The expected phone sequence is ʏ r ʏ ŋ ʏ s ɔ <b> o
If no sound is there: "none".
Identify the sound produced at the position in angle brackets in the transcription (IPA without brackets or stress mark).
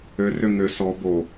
b